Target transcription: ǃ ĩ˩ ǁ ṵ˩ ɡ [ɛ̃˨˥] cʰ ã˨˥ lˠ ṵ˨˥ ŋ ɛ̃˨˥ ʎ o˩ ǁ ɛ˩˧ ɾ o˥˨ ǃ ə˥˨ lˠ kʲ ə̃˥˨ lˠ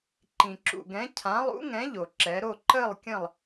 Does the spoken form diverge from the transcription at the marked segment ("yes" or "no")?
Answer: no